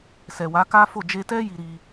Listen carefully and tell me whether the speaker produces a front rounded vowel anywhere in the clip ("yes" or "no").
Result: no